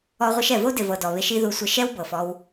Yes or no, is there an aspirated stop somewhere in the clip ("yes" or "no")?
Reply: no